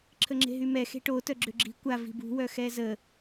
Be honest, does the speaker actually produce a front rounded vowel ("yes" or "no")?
yes